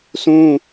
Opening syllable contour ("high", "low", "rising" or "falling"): high